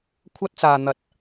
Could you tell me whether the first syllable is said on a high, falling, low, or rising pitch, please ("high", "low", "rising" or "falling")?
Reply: high